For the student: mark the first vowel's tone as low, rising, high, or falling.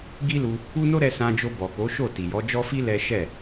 high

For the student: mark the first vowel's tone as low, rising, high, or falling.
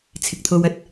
low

